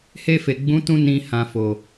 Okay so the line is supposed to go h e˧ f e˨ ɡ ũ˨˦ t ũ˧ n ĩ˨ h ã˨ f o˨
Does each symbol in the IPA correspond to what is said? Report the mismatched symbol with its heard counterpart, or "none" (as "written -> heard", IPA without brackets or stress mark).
ɡ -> ɡ͡b